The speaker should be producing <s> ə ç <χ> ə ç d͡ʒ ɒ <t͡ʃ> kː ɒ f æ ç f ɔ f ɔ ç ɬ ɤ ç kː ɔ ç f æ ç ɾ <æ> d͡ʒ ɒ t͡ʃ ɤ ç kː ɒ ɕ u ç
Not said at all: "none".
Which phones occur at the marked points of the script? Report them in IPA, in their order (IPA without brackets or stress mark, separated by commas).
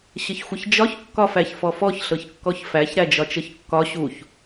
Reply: ɕ, xʷ, ç, æ